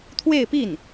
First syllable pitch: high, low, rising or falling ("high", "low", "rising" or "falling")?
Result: falling